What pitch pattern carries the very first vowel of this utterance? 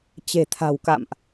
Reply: low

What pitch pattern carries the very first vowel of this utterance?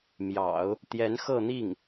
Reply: low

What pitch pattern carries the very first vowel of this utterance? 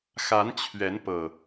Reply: rising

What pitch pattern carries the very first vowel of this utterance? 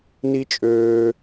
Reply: high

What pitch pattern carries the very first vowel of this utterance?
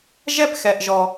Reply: falling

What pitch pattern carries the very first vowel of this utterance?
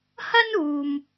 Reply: high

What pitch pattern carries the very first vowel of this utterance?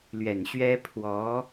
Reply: low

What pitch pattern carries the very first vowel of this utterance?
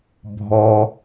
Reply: low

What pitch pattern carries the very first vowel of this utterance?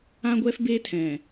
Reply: high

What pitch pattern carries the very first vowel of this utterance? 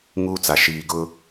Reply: high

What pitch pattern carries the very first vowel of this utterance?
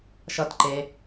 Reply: high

